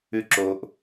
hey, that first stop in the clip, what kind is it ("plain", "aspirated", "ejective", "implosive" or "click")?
click